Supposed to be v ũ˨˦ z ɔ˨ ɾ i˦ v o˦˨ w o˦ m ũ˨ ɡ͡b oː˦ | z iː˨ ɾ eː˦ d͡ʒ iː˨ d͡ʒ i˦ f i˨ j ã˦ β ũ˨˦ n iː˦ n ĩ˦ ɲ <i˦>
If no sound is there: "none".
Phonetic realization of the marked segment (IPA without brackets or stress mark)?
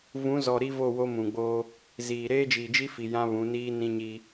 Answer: i˦